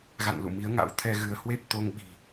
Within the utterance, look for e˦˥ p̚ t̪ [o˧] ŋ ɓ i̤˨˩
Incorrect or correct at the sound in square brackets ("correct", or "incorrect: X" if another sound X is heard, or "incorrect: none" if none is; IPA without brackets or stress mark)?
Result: correct